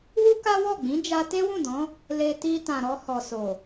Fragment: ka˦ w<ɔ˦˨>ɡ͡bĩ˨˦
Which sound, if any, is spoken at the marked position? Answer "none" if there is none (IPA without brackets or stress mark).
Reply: ɔ˦˨